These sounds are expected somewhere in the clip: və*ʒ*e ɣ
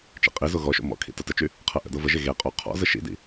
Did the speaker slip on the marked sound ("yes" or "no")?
no